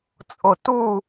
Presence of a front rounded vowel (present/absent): absent